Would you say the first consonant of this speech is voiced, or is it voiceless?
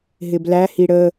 voiced